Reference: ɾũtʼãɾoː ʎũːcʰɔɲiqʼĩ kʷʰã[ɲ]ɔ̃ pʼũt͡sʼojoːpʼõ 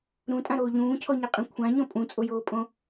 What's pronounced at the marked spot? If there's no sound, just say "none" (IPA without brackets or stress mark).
ɲ